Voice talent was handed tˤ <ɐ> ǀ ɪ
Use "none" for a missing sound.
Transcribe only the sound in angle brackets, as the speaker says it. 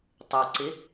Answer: ə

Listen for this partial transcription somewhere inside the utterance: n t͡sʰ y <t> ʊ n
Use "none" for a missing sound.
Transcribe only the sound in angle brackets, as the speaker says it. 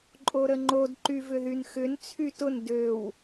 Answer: t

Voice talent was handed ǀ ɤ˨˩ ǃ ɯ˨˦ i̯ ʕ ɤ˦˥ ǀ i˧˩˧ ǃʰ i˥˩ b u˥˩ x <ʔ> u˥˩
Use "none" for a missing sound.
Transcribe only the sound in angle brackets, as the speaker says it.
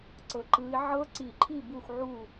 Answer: ʕ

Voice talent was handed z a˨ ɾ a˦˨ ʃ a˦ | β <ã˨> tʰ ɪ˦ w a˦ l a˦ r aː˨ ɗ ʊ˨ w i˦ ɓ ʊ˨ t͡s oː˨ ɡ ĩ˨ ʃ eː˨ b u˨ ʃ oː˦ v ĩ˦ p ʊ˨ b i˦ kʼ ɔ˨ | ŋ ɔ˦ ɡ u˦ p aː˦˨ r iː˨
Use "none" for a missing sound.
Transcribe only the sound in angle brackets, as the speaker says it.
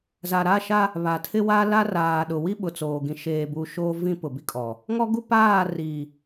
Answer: a˨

